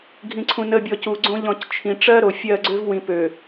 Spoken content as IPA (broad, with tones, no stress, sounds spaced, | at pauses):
ɡʱ ĩ˨ ǀʰ ũ˨ n ə˨ bʲ ɔ˨ c u˨ ɡ͡ǀ õ˦ ʎ ɔ̃˦˨ c t͡ʃʰ ĩ˨ ʈ͡ʂ ɜ˦ ɾ o˨ fʲ ɜ˦˨ ɡ͡ǀ ø˦ v w ĩ˨ p ø˨